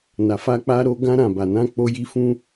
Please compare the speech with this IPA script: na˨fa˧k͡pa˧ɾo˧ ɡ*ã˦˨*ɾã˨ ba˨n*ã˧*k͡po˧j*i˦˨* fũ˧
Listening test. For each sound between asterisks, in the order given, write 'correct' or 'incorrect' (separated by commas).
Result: incorrect, correct, incorrect